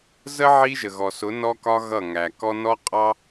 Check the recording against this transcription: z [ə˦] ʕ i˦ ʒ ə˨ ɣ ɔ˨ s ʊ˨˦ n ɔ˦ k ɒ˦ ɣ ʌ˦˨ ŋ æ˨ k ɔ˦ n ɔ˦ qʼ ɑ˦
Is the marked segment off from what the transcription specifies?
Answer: no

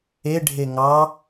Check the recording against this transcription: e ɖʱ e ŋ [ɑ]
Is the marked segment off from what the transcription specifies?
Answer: no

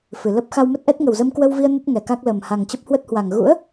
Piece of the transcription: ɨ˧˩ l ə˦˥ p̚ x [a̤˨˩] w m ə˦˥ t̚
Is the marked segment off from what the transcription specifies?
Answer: yes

